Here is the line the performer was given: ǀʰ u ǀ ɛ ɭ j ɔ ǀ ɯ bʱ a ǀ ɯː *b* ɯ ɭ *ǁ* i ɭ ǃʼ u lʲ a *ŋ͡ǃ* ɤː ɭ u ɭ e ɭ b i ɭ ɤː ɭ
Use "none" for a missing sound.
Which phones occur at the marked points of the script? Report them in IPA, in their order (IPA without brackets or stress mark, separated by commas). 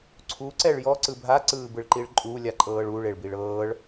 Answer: b, ǃ, ǃʼ